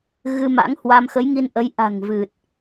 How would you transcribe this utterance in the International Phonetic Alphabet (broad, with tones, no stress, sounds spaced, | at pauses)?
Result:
ɣ ɨ˧ m a̰˧˥ ŋ h w a˧ m x ə˨˦ j ŋ i˧ n ʔ ə˨˦ j ʔ a̤˨˩ ŋ v ɨ˨˩ t̚